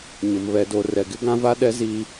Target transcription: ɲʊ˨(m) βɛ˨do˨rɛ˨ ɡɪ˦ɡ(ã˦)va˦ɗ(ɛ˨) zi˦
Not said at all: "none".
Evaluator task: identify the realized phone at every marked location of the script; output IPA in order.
m, ã˦, ɛ˦

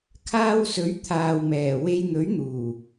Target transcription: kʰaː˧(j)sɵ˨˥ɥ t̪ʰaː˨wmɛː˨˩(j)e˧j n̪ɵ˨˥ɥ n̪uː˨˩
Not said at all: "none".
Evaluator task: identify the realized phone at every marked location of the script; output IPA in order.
w, w

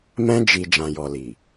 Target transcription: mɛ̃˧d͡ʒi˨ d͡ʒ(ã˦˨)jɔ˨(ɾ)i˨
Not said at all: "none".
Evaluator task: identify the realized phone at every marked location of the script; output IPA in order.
ã˨, l

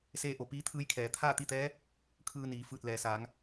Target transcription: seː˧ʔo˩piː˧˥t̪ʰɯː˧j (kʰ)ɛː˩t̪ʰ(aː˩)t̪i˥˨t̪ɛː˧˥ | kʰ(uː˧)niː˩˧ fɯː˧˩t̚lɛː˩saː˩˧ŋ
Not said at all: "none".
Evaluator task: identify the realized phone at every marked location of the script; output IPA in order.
kʰ, aː˥˨, ɯː˧

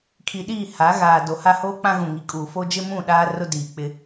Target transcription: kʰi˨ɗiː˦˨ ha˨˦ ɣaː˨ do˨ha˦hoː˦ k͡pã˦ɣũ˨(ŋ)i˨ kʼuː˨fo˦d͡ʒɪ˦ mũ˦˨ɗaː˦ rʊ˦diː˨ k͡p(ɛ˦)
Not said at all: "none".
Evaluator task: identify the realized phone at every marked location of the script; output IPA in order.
ŋ, ɪ˦

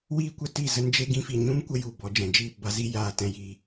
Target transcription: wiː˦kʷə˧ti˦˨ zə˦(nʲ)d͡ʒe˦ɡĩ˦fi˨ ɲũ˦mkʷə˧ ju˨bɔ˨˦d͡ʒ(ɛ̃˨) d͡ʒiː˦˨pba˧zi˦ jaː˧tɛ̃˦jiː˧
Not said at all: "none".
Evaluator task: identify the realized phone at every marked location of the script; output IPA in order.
n, ɛ̃˨

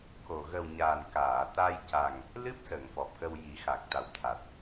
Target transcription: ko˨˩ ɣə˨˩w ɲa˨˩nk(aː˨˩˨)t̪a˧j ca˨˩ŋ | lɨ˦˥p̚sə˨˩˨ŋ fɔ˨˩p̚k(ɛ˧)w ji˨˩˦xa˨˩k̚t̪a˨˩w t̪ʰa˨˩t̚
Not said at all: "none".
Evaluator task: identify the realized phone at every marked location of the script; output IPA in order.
aː˨˩˨, ə˧

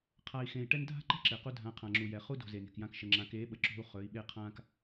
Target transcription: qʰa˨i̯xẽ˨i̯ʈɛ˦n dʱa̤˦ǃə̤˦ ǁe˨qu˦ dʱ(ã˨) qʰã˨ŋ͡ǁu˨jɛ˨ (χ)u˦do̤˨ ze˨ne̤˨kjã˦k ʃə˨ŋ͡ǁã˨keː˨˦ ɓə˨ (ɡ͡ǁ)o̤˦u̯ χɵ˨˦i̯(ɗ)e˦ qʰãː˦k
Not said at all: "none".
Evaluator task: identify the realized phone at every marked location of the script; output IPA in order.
ã˨, χ, ǁ, ɓ

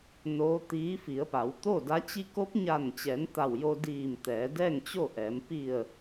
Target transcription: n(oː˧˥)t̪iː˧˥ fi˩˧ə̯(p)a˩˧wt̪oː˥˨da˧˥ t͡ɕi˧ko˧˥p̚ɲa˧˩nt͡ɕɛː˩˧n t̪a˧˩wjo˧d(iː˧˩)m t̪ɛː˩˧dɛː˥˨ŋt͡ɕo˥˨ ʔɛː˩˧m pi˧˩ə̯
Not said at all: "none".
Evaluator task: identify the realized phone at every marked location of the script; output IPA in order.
oː˧˥, p, iː˧˩

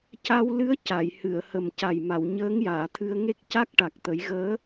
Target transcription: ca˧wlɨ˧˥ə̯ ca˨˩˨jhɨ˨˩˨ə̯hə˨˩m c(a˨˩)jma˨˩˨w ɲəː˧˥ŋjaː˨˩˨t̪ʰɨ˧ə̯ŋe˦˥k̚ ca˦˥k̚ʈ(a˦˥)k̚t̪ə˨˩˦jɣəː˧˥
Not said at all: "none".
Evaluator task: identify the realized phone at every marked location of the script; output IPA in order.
a˨˩, a˨˩

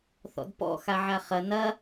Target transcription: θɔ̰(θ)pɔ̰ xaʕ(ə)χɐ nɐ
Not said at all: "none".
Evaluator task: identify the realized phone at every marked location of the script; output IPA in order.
d, a

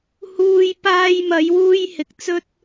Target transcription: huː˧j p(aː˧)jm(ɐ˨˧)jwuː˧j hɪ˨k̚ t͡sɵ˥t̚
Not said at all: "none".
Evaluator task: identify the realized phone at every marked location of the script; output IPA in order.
aː˧, ɐ˨˧

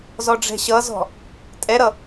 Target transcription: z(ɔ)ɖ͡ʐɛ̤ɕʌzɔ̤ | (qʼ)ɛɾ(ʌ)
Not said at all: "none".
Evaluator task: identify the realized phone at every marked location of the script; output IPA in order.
ɔ, tʼ, ʌ

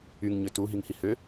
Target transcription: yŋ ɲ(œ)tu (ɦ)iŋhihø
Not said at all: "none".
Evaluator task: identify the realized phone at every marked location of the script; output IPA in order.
ø, ɦ

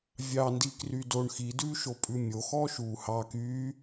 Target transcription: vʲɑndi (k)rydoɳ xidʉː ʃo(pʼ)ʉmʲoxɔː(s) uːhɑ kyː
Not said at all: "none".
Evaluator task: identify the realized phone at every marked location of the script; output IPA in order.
k, pʼ, ʃ

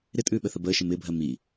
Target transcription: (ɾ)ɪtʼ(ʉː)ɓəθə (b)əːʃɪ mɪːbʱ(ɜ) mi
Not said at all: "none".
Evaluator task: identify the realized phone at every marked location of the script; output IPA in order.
ɾ, ʉː, b, ɜ

